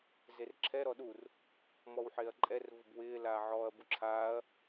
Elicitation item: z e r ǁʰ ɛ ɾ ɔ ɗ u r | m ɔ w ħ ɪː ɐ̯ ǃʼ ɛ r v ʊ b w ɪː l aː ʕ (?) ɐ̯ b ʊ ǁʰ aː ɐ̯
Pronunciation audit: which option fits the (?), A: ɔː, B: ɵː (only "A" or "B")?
A